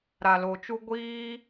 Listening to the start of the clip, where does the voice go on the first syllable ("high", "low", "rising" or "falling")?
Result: low